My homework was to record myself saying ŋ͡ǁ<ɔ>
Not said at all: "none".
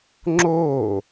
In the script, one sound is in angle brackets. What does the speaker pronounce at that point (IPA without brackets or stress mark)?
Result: o